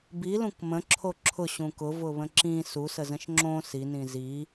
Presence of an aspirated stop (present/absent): present